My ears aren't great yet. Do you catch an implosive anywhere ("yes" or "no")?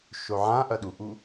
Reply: yes